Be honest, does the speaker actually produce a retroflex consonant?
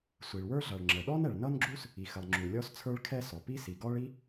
yes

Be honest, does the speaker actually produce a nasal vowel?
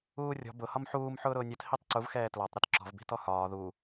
no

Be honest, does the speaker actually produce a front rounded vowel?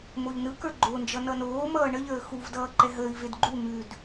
no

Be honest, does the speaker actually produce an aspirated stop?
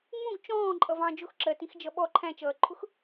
yes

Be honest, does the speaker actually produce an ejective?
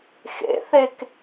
no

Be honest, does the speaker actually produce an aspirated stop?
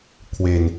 yes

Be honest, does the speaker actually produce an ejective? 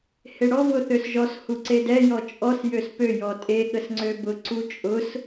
yes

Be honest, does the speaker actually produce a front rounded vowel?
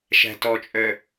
yes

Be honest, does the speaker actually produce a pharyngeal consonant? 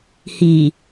no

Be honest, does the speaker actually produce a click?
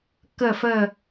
no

